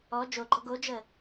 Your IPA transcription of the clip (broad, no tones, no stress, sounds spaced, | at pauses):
ɔ d͡ʒ o ɡ͡ǃ ɔ ɡ o d͡ʒ ə